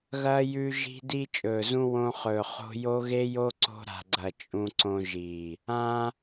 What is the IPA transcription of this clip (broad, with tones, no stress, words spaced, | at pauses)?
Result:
ɣɐː˧jʉ˧ ʒi̤˧di˧ t͡ʃʼɵː˨zũ˧ wõ˧χɵː˨χo̤˧ jo˦ɣe˦jo˦ ǀo̤˧ɾa̤˨ɡ͡ǀɐ˨ t͡ʃʼũ˧ǀõ˧ ʒi˨ | ã˧